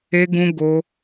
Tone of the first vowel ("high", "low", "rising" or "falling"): high